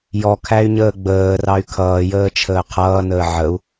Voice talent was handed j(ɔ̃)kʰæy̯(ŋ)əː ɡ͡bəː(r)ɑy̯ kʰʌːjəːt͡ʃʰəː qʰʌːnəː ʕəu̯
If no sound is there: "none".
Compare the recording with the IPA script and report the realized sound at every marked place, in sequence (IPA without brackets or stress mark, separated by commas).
ɔ, ɲ, r